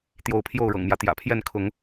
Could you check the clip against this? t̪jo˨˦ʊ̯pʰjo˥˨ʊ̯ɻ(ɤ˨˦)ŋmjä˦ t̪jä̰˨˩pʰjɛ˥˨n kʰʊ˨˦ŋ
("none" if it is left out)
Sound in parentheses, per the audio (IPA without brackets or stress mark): ɤ̰˨˩